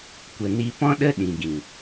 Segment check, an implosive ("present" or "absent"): present